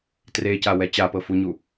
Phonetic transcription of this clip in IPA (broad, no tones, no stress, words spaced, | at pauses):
trecawɛ t͡ɕapɤfuɲu